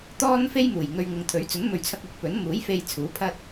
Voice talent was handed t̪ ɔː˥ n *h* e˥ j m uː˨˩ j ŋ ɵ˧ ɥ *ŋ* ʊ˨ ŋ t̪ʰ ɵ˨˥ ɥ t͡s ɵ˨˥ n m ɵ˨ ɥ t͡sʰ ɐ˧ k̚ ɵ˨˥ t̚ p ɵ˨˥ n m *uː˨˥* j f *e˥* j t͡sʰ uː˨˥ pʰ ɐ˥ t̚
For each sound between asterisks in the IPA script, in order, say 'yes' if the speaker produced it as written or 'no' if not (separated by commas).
no, yes, yes, no